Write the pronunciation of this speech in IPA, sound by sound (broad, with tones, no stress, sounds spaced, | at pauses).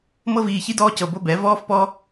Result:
m ɤ˦ v iː˧ ç i˦ d ɔː˦ c ɤ˧ b o˦ b ɛ˨˦ v ɔː˦ f p ɔ˦